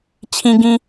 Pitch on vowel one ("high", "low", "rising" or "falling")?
low